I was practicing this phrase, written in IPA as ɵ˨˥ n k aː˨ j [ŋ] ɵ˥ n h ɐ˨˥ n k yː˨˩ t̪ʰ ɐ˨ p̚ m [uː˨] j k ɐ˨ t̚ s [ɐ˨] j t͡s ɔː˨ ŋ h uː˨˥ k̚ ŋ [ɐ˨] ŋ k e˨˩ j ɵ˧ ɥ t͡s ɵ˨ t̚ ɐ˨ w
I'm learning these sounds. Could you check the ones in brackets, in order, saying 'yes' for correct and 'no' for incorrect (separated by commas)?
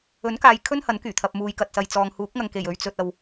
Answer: no, yes, yes, yes